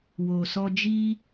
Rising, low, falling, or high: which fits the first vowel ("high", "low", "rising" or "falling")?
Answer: low